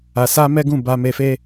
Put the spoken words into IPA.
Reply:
a˧ s a˦ m ɛ˦ ɡ ũ˦˨ b a˧ m e˧ f e˦

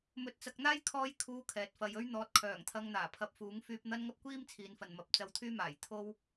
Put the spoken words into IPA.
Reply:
m ɵ˧ t̚ t͡s ɐ˧ k̚ n̪ aː˥ j kʰ ɔː˧ j kʰ uː˧ kʰ ɛː˨˥ t̚ f ɐ˧ j ɵ˥ ɥ n̪ ɔː˨˥ t̚ kʰ œː˨˩ ŋ t̪ʰ ɐ˧ ŋ n̪ aː˨˩ pʰ ɐ˧ p̚ f uː˨˥ ŋ f yː˧ p̚ n̪ ɐ˥ n ŋ ɐ˥ p̚ kʷ iː˥ m t͡sʰ iː˨˧ n f ɐ˨ n m ɐ˨ p̚ t͡s ɐ˧ w t̪ʰ yː˥ m aː˨˩ j t̪ʰ o˥ w

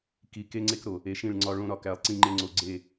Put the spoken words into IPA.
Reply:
k i˨ k e˦ ŋ͡ǀ e˦ k ɾ o˨ | e˨ ʃ ĩ˦˨ ɭ ŋ͡ǀ ɒ˦ ɭ õ˦ ɾ ɒ˦˨ k æ˨ lˠ ǀ ĩ˦ ŋ͡ǃ e˦ ŋ͡ǀ o˨ ɡ͡ǀ e˦˨

